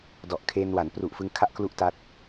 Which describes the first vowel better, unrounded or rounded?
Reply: rounded